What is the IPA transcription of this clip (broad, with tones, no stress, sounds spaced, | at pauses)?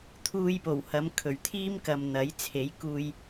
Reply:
t̪ʰ uː˧ j p o˨˩ w h ɐ˨˧ m kʰ ɵ˨˩ ɥ t̪ʰ iː˥ m k ɐ˨ m n̪ ɐ˨˥ j t͡sʰ e˨˥ j k uː˧ j